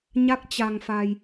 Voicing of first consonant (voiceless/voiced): voiced